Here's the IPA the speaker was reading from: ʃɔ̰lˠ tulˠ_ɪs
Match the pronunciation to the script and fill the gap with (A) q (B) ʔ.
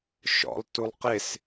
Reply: A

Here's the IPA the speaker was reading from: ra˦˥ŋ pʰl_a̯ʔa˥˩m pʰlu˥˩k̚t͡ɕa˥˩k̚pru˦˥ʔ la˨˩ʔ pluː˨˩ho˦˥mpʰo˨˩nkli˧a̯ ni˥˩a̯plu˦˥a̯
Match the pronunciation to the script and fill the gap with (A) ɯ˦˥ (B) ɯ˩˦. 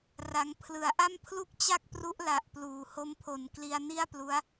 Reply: B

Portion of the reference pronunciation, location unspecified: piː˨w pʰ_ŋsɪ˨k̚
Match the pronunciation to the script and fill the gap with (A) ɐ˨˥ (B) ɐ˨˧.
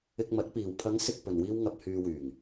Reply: B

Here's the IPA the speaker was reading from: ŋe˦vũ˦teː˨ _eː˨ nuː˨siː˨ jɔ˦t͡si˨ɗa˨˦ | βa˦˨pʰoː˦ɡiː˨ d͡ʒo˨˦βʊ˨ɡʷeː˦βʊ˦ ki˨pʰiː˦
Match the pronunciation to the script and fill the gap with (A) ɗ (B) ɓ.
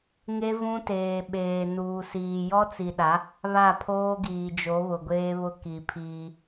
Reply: B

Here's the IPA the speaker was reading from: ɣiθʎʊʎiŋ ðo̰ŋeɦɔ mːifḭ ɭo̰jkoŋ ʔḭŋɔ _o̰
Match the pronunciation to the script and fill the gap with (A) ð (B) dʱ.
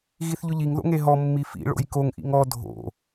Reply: B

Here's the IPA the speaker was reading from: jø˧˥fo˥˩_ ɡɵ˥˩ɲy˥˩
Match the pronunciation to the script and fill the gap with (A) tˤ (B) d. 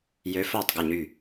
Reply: A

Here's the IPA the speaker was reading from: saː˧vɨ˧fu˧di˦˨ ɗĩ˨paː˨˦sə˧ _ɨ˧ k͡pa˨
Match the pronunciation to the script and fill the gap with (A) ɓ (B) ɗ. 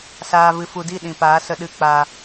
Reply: B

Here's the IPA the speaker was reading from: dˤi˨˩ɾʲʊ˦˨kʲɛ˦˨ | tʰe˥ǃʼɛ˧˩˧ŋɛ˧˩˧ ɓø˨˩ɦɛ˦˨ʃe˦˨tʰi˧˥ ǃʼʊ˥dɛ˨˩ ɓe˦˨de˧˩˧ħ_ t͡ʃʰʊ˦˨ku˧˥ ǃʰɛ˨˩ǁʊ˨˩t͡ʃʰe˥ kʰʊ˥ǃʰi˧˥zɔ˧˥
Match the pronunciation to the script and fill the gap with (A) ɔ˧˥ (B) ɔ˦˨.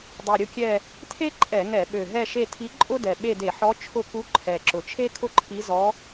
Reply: A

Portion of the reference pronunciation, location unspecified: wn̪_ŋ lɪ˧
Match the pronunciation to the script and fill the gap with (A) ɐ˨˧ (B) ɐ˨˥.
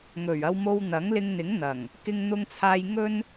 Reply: B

